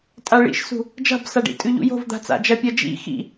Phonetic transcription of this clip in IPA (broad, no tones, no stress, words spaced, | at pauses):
tʼaɭḭʃsṳ | d͡ʒa̤bsaɖḭ tʼʉʎṵjo̤v d̪a̤t͡sa̰d͡ʒɐ pʲɐd͡ʒḭ xḭ